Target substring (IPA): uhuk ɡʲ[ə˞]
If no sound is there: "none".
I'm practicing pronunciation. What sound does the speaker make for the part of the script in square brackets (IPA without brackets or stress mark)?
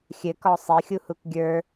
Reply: ə˞